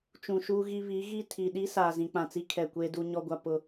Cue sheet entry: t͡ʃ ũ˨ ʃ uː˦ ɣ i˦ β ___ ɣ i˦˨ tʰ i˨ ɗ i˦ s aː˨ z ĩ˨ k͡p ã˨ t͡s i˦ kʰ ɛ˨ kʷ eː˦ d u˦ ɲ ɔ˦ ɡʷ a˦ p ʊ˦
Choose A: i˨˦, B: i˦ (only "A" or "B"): A